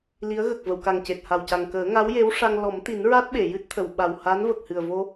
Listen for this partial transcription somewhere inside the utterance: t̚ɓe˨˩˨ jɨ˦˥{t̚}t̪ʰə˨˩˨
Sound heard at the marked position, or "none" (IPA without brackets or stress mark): t̚